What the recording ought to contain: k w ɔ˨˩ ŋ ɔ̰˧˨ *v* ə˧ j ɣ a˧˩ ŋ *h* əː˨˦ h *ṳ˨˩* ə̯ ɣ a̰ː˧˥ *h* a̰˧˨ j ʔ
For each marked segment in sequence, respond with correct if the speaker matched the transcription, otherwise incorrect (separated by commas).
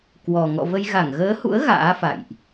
correct, incorrect, incorrect, incorrect